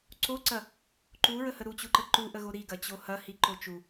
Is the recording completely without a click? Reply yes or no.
no